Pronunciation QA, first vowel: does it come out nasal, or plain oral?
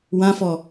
nasal